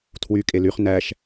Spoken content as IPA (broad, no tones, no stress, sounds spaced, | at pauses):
tʰ w y kʼ e l y χ n æ ʃ